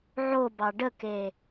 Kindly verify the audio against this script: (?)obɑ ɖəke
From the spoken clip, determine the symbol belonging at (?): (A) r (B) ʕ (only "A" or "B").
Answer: B